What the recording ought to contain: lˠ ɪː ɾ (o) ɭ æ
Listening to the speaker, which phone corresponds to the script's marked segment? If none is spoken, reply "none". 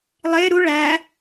u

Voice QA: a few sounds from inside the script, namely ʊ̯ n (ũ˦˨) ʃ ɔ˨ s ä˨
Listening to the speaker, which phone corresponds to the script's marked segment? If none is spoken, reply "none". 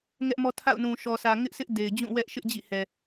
ũ˨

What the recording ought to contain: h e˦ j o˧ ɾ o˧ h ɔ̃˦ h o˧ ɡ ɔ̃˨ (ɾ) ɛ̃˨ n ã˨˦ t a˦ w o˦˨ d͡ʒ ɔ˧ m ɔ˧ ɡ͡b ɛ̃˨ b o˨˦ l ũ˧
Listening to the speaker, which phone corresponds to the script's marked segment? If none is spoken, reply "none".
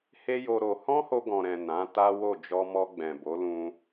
ɾ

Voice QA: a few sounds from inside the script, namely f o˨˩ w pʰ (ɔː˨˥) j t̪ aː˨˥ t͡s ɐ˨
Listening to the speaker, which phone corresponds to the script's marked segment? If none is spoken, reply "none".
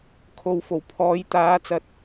ɔː˨˥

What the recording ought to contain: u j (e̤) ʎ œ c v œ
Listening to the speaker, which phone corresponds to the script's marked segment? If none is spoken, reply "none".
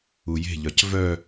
e̤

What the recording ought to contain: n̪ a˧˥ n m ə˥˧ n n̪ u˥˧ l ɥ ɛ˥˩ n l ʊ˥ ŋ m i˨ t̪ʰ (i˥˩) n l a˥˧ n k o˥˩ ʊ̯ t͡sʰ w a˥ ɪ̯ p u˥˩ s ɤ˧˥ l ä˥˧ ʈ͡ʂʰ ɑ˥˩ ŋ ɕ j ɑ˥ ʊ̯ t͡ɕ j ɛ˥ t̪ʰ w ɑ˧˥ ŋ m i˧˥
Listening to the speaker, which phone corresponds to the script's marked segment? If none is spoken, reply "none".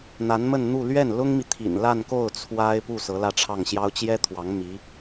ḭ˨˩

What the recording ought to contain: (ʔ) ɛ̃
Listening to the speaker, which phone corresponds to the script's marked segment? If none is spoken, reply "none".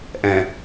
ʔ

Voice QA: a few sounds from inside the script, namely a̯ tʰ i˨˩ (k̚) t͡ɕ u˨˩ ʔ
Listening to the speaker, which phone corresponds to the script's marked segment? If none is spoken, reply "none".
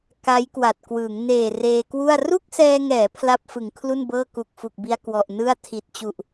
t̚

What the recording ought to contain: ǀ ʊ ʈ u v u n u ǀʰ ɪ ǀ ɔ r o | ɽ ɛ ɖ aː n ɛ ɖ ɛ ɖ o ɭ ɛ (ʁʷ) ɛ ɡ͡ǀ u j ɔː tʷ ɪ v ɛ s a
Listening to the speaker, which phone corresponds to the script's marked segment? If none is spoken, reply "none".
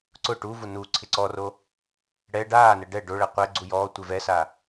qʷ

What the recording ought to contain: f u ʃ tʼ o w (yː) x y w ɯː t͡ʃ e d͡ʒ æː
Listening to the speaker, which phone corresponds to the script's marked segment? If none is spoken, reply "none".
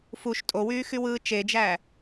yː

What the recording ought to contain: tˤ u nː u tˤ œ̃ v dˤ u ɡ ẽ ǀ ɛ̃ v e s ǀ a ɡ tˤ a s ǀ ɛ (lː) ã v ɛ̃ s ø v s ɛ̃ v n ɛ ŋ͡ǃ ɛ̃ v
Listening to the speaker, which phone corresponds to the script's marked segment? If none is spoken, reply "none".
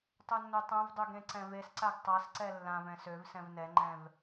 lː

